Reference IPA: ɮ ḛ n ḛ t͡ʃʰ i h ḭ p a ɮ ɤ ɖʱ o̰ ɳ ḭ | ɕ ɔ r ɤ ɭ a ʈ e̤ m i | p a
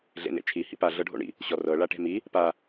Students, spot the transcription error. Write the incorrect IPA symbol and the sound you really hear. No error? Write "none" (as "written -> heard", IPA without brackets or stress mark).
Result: none